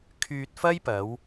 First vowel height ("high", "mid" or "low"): high